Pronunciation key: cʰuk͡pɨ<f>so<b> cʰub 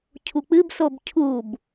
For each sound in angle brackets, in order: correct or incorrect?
incorrect, correct

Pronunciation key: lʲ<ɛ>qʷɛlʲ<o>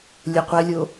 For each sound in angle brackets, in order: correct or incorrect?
correct, correct

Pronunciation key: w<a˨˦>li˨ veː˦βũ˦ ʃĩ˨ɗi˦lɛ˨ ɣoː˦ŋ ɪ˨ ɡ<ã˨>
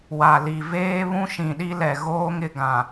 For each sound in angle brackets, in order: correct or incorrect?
incorrect, correct

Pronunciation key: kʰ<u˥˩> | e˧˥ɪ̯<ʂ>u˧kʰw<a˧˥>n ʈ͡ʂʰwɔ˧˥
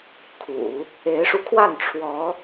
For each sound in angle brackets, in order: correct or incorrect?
incorrect, correct, incorrect

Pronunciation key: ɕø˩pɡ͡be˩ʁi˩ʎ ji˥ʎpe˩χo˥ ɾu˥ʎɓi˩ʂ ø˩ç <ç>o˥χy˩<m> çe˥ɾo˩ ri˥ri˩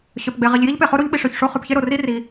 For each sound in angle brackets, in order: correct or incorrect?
incorrect, incorrect

